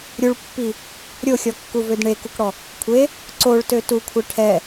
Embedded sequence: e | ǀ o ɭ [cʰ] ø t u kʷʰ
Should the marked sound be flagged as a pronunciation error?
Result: yes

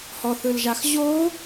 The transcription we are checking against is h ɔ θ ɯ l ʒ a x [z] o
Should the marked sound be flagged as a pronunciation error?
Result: yes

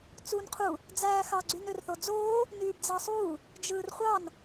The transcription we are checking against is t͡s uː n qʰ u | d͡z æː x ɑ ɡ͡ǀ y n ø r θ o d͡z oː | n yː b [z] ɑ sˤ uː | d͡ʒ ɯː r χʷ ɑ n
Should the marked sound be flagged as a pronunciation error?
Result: yes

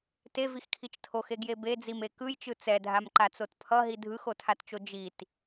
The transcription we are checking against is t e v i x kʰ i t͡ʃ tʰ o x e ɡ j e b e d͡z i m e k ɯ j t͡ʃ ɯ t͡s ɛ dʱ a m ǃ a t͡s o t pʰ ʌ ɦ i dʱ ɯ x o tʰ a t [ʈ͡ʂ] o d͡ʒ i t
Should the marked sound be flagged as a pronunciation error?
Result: yes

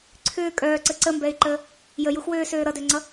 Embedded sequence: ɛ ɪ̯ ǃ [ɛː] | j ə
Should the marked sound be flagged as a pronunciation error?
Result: yes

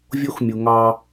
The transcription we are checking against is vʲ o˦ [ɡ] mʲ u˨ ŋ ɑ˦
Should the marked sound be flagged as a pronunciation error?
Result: yes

